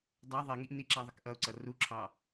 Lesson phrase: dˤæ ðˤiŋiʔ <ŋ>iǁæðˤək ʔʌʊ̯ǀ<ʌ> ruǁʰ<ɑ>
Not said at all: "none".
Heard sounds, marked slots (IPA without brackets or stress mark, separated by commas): n, ʌ, ɑ